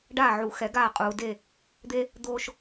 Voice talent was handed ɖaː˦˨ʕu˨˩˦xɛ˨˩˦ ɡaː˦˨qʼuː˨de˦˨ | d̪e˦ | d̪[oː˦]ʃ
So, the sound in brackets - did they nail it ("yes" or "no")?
yes